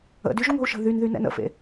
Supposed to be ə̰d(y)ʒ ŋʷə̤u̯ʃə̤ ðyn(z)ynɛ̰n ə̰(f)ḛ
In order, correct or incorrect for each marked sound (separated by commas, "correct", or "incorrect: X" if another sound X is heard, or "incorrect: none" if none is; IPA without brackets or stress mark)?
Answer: correct, incorrect: ð, correct